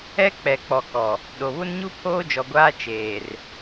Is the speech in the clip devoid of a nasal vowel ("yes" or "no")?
yes